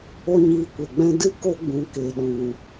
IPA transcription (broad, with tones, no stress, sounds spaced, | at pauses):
o˦ ɲ iː˧ kʷ e˨ ɡ͡b ɛ̃˦ d ɨ˦ k o˧ ɡ͡b ũ˨ k e˨ ɗ ũ˨